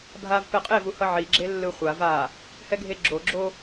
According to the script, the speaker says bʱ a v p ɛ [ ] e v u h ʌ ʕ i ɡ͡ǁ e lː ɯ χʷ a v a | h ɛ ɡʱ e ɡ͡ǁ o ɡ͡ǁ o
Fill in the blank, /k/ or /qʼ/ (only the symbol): qʼ